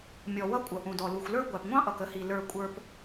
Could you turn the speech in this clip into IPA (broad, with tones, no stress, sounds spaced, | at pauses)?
mʲ ɔ˩ w ʌ˧ kʷʼ ʌ˩ ʔ ũ˩ d ɔ˩ l u˩ xʷ l ə˞˧ ɡʷ æ˩ p ŋʷ ɑ̃˧ ʔ ʌ˩ k ə˧ h i˩ l ə˞˩ kʷʼ ə˞˩ p